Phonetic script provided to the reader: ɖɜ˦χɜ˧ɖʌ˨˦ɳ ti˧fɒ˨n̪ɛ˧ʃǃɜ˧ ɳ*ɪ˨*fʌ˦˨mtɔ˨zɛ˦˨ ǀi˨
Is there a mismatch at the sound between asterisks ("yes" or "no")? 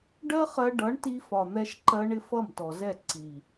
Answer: yes